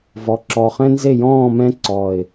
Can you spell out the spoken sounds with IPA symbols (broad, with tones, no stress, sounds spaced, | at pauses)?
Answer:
v ɔ˨˩ ǁ ɔ˨˩ χ ɛ̃˦ n z e˦˨ j ɔ̃ː˦˨ m ɛ̃˦ ǀ ɔ˨˩ ɪ̯